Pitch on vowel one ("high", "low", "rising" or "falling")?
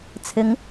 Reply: rising